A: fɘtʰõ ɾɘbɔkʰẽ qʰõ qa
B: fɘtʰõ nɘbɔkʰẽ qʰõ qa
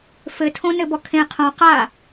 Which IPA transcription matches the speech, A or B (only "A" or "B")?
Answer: B